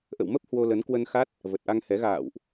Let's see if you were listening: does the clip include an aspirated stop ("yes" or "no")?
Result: no